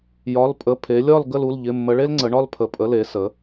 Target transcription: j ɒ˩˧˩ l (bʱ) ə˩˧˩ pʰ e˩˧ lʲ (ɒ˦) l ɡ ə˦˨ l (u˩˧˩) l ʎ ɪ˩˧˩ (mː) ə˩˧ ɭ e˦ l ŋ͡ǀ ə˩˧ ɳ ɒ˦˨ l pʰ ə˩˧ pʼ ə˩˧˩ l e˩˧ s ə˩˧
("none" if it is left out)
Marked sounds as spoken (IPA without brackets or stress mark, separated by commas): pʼ, ɒ˦˨, u˩˧˩, mː